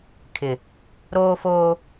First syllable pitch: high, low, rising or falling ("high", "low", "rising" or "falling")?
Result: low